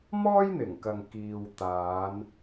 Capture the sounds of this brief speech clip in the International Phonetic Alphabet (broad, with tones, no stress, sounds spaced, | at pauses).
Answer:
m ɔː˥ j n̪ ɪ˨˩ ŋ k ɐ˨ ŋ k iː˨ w t̪ aː˨˧ n